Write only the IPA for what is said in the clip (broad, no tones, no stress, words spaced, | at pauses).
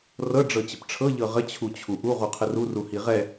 rɤ ɖ͡ʐɤt͡ɕəpʈ͡ʂʰɤ ʎɤʁə t͡ɕʰut͡ɕʰuʔu ʁuqʰəru ruhiʁɛ